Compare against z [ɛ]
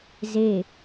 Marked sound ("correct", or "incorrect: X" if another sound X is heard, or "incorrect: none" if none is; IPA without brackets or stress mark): incorrect: e